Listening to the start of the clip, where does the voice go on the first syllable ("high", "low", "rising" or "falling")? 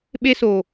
high